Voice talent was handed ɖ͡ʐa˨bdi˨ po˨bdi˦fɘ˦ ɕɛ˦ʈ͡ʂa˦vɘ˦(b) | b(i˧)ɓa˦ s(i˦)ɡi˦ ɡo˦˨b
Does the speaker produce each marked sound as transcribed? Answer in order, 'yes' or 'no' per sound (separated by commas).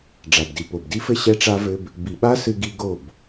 yes, no, no